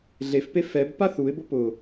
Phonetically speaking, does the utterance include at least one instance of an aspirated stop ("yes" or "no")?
no